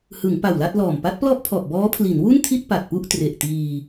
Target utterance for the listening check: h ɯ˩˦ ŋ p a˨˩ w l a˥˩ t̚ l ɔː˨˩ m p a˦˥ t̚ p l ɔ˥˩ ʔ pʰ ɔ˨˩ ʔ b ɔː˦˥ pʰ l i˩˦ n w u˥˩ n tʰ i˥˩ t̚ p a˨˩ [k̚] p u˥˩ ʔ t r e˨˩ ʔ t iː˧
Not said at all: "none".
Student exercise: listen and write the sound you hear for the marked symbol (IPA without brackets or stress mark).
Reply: t̚